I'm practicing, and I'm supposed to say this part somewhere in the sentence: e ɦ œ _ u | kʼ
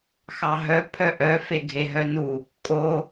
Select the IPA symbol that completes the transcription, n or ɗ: n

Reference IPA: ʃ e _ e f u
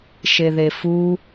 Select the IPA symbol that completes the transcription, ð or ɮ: ð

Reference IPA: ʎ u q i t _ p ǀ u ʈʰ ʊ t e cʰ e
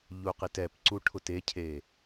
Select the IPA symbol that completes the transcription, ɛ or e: ɛ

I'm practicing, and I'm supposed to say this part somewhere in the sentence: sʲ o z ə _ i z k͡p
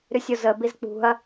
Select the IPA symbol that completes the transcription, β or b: b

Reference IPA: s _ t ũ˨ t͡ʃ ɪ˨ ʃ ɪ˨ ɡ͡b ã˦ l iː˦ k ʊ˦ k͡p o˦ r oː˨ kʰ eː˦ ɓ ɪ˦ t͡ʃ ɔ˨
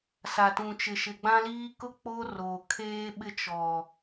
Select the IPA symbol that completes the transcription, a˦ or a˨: a˨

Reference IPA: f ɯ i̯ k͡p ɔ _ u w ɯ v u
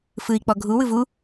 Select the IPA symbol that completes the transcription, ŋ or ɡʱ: ɡʱ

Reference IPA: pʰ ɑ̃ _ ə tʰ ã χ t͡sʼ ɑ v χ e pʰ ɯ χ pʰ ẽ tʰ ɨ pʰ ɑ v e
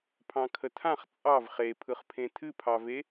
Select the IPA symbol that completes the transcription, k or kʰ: kʰ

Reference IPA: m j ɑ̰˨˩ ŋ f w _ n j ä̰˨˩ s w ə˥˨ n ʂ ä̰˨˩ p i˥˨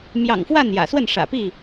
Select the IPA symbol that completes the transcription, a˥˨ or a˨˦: a˥˨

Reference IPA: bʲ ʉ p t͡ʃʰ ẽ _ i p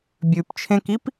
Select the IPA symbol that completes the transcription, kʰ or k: k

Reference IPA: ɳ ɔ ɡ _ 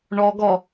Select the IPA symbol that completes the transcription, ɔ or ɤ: ɔ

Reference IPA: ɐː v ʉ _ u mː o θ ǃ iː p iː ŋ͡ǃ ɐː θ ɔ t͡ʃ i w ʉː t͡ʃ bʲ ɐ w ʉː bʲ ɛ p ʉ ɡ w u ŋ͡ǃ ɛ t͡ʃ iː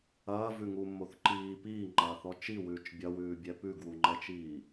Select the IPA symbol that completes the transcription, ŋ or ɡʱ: ŋ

